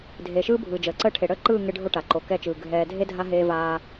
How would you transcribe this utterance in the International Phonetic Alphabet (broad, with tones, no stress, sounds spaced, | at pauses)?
dʱ eː˨ ʃ ɯː˦ bʱ ɯː˨ d͡ʒ əː˨ ǀ əː˦ ʈʰ e˨ ɽ əː˦ ǃ ɯː˦˨ ŋ e˦ ɖʱ o˦ ʈ a˨ ǃ o˨ k ɛ˦˨ t͡ʃ ɯː˨ ɡʱ ɛː˨ dʱ e˦ dʱ a˦ ɦ eː˦ v aː˦